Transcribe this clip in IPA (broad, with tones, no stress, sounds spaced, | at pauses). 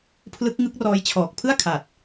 pʰ l ɯ˦˥ k̚ ŋ ɯ˦˥ k̚ r ɔː˦˥ j t͡ɕʰ ɔː˨˩ k̚ pʰ ɯ˥˩ a̯ kʰ a˨˩ t̚